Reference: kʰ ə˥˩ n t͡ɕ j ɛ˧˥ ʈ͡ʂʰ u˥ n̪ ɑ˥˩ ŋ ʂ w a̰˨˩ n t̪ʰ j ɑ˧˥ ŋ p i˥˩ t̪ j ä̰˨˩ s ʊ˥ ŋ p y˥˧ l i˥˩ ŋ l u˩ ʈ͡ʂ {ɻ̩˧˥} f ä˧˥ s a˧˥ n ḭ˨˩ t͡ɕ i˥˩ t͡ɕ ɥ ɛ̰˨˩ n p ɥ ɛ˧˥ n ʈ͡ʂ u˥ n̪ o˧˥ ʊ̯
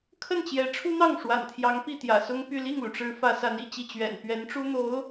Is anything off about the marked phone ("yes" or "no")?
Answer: no